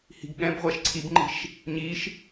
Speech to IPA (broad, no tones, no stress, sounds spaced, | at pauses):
h i̤ ɡ ɠ ɛ̃ b ʁʷ ɛ ʃ ǀʰ i b ŋ͡ǃ i̤ ʃ | ɲ i ʃ